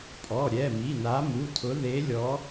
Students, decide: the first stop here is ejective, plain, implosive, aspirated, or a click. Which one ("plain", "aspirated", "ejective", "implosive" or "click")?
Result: ejective